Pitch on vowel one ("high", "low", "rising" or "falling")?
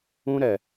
high